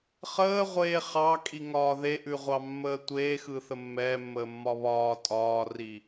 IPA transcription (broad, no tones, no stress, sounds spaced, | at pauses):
χ əː ʁʷ eː χ ɑ kʼ i ŋ ɒː ð e ʔ ʉ ʁʷ ɑ mː əː tʷ eː x ɯ θ ə mː ɛː mː əː mː ɒ β ɒː tʼ ɒː r i